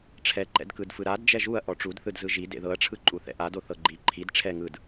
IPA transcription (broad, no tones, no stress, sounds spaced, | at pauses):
ʈ͡ʂʰ ɛ ǃ ɛ̰ d k ɯ d f ɯ ɾ a d d͡ʒ ɛ ʒ u ɐ̯ ʔ ɔ ʈ͡ʂ u d θ ɯ d z ɯ ʒ i d ḛ ð ɤ ɐ̯ ʈ͡ʂʰ ɯ ǃʼ u θ ɛ̰ ʔ a d o θ ɤ ɡ͡ǃ i ǃʰ i d ʈ͡ʂʰ ɛ ŋ ɯ d